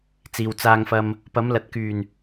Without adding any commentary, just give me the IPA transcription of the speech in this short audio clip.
t͡s iː˨ w t͡s aː˧ ŋ f ɐ˧ m | p ɐ˨˥ m l ɐ˨ t̚ k yː˨˩ n

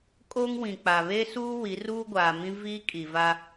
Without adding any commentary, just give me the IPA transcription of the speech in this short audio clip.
kʼ oː˦ ŋ w ĩ˨ k͡p a˨ β e˦ s uː˦ w i˨˦ r uː˦ ɡʷ aː˨ m ĩ˦ v iː˦ kʼ i˨ v a˦

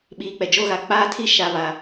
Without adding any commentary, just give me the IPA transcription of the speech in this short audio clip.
ɓ iː˨ k͡p ɛ˨ d͡ʒ o˦ ɣ a˨ k͡p aː˦ tʰ i˦ ʃ a˨ β a˨

